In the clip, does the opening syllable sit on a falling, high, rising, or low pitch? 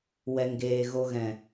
low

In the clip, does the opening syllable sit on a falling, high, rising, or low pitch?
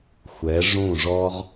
rising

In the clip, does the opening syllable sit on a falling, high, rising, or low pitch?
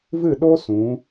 falling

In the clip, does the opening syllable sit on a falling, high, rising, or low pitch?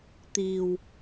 low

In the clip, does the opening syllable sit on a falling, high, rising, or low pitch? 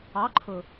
rising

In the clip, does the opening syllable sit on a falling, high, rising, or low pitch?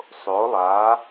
rising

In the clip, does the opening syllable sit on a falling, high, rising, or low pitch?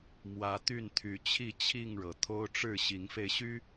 rising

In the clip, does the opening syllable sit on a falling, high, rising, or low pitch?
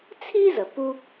high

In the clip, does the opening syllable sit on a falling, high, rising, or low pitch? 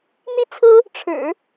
high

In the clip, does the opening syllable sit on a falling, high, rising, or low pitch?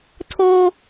high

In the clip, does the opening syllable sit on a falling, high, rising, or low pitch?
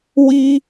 high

